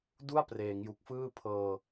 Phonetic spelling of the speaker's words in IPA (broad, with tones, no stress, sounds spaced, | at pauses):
d u˥˩ a̯ p r eː˩˦ ŋ j u˨˩ k̚ f ɯː˥˩ pʰ ɤː˧